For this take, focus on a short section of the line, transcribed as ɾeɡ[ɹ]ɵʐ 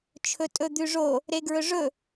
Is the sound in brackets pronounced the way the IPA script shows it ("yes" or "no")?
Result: yes